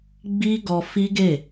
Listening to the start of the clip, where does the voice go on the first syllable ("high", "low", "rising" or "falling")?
high